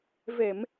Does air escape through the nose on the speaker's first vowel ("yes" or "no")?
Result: no